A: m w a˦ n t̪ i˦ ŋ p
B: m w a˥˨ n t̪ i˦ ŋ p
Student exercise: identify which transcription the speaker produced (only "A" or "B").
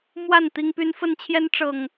B